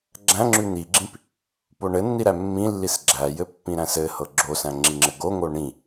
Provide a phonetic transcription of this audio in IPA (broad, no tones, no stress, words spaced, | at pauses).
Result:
ɡ͡ǁæ̃ŋ͡ǁʉ n̪iɡ͡ǁĩp | poɳɘnːi ɾæmːĩlːis ɡ͡ǁæjɘ pːĩɾæ̃sɘhɤ ɡ͡ǁosæ̃ ŋ͡ǁiŋ͡ǁɘɡoŋo ɳĩ